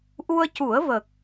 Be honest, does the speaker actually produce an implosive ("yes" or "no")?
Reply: no